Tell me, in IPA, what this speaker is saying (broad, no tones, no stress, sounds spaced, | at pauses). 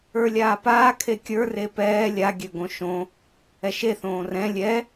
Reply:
ə˞ lʲ aː p aː kʰ e kʲ ə˞ r e p ɛː lʲ a ɡʲ ø ɡ õ ʃ õ | ɛ ʃ e θ õː r ɛ̃ lʲ ɛ